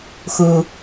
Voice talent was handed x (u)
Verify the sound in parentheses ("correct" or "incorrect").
correct